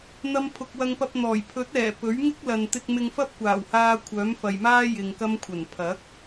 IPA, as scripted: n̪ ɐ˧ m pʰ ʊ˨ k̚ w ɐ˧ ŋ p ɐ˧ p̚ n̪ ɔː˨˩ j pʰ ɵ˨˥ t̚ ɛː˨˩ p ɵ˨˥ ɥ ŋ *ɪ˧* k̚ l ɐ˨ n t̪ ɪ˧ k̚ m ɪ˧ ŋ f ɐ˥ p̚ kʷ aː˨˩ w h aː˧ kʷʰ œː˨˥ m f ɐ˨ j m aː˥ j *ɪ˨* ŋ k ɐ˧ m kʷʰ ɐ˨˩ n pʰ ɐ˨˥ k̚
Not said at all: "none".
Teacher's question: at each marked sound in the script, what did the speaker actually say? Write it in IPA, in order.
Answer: ɪ˥, ɪ˨

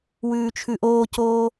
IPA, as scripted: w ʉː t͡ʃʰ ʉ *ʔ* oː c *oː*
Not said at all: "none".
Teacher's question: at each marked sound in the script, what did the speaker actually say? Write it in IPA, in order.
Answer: ʔ, oː

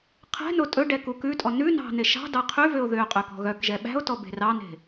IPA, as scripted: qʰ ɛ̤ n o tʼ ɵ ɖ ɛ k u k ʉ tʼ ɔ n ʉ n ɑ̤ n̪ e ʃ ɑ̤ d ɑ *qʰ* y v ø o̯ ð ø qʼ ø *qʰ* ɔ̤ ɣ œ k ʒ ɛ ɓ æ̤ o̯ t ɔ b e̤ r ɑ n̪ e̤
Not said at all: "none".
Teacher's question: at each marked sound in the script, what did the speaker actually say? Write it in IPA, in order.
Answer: qʰ, k

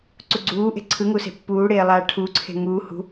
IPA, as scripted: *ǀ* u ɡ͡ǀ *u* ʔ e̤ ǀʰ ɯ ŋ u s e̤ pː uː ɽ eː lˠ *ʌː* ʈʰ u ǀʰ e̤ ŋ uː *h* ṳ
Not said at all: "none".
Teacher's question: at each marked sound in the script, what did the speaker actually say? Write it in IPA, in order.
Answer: ǀ, uː, aː, h

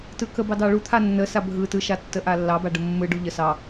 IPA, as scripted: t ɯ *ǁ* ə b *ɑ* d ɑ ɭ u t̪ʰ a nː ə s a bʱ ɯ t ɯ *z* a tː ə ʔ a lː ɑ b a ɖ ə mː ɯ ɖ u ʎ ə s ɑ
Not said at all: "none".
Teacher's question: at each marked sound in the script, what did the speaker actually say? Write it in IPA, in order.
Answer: k, ɑ, ʃ

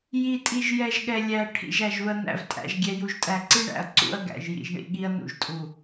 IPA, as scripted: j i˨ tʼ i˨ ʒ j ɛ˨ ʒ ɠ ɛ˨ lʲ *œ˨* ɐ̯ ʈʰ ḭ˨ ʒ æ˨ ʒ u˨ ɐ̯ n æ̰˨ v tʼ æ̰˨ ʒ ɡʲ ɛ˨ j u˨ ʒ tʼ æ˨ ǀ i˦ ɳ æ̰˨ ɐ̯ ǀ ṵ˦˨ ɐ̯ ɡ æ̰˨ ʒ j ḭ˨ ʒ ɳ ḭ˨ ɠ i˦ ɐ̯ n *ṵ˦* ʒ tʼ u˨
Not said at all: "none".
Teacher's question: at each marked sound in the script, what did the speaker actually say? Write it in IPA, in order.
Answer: æ˨, ṵ˨

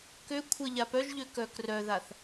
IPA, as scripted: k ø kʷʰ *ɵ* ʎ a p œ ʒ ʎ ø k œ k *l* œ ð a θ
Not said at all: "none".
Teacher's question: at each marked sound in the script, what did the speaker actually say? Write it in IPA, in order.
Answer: ə, r

